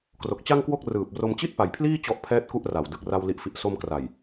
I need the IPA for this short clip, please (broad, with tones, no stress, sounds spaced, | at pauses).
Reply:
k r o˨˩ k̚ t͡ɕ a˥˩ ŋ k w o˥˩ k̚ r ɯː˨˩ p̚ r o˧ m t͡ɕ i˥˩ t̚ p a˨˩ j pʰ l iː˥˩ t͡ɕ ɔ˦˥ ʔ pʰ ɛː˦˥ t̚ k u˦˥ ʔ r a˨˩ w d ɯ˨˩ k̚ r a˧ w l i˨˩ ʔ f i˨˩ ʔ s o˧ m k r a˨˩ j